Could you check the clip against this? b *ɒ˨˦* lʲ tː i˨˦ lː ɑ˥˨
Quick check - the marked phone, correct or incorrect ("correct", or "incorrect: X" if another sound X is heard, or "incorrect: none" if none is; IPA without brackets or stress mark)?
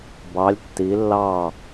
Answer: incorrect: ɑ˨˦